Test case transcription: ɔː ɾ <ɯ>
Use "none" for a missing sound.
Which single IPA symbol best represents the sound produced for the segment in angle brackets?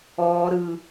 ɯ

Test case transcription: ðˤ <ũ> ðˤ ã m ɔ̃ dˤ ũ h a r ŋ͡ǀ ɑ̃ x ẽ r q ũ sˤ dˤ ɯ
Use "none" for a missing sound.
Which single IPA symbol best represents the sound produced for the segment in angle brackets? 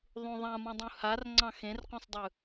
ũ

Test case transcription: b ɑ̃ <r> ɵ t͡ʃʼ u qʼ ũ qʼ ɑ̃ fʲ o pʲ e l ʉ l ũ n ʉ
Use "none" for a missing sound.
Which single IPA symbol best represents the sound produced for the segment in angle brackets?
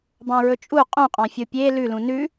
ɹ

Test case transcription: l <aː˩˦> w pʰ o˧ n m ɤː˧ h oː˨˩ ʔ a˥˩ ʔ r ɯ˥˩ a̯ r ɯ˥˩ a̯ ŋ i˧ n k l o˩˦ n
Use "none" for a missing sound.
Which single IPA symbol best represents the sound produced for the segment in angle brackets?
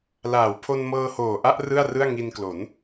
aː˩˦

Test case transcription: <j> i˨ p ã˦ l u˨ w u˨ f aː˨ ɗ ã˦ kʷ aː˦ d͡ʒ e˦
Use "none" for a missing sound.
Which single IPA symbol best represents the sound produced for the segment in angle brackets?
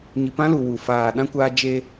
ɲ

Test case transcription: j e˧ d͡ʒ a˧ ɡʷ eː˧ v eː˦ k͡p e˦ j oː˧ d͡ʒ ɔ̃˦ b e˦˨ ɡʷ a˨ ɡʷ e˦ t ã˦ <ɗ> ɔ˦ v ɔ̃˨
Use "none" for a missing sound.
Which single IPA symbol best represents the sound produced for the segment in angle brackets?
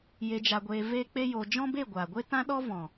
ɗ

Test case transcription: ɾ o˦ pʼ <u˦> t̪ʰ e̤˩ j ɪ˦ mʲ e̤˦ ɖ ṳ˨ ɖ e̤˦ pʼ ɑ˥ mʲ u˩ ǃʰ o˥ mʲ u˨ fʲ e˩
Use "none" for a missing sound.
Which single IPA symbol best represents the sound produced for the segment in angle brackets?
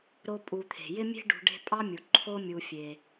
u˨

